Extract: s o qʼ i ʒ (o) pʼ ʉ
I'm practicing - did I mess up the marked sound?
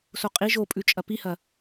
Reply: no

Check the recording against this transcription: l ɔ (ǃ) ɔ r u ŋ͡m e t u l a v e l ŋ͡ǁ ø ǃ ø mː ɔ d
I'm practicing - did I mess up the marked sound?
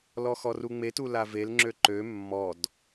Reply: yes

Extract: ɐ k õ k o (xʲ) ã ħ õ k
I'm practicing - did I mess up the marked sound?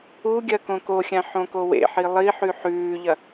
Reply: no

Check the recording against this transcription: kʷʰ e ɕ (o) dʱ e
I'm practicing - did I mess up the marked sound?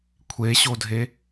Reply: no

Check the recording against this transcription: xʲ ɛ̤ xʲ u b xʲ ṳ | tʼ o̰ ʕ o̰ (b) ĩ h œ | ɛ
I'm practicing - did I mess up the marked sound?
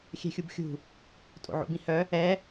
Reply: no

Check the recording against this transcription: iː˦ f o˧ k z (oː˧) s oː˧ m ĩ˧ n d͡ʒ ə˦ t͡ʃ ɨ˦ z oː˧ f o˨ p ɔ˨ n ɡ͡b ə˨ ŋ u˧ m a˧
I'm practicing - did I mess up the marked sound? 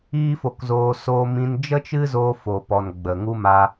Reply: no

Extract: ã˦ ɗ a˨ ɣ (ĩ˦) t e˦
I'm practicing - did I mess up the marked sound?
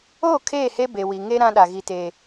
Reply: yes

